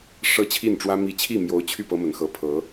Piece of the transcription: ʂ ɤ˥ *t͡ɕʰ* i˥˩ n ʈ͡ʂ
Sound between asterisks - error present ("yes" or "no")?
no